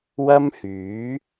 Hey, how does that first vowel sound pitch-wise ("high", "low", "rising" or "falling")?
high